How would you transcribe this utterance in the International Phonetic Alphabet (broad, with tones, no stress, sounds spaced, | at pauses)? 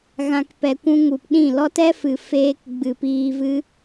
ɣ ã˨ k p ɛ˨ kʷ ũ˧ ŋ u˨ p ɗ ĩ˦˨ l ɔ˦ t ɛ˦ f ɨ˨ f eː˧ k ɡ͡b ɨ˨ p iː˧ v ɨ˦